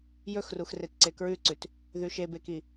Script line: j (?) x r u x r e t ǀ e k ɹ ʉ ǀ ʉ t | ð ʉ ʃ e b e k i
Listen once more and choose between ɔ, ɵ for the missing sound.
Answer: ɵ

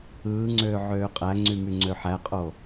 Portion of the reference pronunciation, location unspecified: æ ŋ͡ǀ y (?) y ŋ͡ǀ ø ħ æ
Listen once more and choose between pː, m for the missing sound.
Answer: m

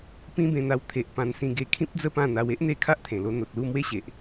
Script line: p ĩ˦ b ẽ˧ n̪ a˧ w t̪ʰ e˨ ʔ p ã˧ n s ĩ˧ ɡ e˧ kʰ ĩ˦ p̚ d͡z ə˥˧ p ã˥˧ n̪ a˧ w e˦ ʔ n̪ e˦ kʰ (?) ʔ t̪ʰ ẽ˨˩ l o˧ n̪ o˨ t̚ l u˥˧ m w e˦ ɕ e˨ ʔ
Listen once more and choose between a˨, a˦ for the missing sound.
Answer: a˦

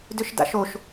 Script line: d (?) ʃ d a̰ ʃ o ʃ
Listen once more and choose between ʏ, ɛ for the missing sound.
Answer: ʏ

